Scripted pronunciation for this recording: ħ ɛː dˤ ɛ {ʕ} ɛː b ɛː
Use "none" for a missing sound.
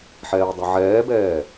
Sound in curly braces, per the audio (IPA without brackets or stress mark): ʕ